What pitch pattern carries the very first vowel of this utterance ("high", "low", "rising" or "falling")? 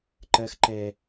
high